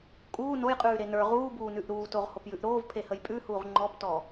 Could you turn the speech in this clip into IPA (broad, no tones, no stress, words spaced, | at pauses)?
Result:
kʼuː nojqʼʉː ɾenə˞ ʁuːbuːnʉʔ ɾuːtoʁ hopjʉʔɾoːv pʰehəjpʼʉhuːʁ ŋ͡ǃɔptɔ